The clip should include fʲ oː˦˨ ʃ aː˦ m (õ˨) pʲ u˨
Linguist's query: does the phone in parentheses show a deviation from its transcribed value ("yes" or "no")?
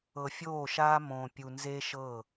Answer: no